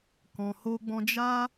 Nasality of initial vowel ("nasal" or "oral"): nasal